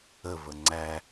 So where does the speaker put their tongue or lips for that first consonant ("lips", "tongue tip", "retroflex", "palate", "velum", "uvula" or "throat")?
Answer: lips